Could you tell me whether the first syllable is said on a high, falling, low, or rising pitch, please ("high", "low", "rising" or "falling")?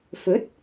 rising